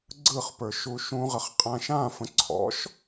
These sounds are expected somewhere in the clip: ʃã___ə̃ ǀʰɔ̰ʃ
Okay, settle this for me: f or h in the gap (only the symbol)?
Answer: f